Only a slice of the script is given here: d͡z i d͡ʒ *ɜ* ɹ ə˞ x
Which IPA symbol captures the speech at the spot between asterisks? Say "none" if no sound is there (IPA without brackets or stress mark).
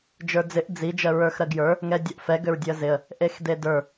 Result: ɜ